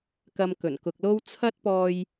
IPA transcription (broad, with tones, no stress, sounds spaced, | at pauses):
k ɐ˧ m k ɵ˨˩ n k ʊ˨ k̚ l o˥ w t͡sʰ ɐ˥ t̚ p ɔː˧ j